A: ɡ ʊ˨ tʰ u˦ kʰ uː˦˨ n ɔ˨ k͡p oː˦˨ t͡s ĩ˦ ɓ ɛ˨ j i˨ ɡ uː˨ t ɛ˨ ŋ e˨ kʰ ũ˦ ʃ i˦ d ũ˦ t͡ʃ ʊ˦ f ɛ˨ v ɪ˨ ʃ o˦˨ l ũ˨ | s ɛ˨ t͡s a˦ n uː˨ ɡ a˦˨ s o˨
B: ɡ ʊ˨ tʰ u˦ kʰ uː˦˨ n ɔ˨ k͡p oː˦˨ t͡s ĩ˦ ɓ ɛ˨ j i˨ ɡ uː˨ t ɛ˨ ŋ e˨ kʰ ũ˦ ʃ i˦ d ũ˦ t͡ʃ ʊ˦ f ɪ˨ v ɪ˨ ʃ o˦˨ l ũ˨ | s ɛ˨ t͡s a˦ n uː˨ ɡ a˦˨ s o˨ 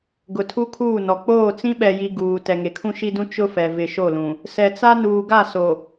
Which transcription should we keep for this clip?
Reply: A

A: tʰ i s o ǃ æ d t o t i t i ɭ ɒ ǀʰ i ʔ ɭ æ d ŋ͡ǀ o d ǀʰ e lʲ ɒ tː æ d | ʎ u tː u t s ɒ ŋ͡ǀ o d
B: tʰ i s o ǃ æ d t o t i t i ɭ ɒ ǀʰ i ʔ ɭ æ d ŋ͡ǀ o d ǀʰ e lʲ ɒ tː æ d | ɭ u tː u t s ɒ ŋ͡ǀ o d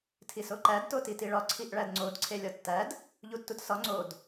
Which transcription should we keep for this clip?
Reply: A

